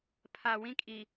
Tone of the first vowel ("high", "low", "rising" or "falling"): low